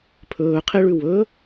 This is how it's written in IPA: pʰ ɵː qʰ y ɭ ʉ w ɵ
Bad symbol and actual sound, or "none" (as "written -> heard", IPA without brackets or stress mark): y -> e